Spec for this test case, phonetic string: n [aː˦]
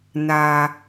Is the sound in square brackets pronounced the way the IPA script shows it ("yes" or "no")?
no